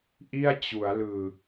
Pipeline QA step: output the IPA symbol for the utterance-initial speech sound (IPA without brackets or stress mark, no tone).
ʔ